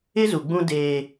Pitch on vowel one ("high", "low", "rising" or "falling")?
high